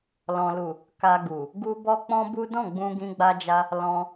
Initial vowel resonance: nasal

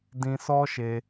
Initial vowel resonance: nasal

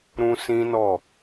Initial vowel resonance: nasal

